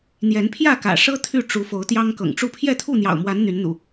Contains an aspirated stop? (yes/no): yes